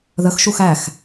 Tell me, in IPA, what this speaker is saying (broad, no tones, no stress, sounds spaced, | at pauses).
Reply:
ð ə x ʃ u x æ x